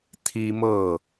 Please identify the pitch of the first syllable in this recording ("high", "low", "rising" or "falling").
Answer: high